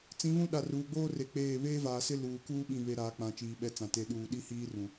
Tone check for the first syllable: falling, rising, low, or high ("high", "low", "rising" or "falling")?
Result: rising